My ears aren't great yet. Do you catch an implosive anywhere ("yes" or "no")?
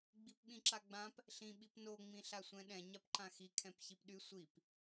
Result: yes